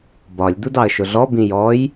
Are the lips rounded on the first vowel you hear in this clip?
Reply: yes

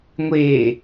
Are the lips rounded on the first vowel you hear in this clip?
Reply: no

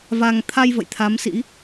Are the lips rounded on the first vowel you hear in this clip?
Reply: no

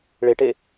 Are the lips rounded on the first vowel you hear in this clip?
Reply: no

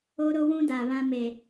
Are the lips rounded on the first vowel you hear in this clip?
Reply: yes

